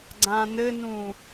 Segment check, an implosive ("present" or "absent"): absent